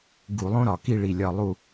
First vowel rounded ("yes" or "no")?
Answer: yes